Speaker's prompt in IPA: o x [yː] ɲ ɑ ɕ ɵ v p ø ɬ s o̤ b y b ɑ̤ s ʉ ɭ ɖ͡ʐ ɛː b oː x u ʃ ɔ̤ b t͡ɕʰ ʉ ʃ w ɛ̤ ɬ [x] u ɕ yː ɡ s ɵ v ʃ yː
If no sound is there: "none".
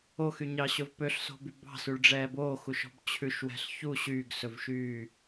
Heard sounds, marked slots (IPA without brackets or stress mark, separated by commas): y, ç